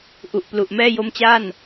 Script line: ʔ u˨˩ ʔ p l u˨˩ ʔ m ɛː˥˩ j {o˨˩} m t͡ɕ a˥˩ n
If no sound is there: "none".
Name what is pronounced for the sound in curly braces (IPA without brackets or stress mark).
o˦˥